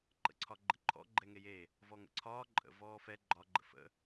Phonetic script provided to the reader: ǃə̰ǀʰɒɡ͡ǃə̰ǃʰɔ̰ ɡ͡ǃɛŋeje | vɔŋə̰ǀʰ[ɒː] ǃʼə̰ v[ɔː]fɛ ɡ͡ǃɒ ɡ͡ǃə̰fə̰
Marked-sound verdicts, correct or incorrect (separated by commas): correct, correct